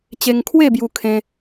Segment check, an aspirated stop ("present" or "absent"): present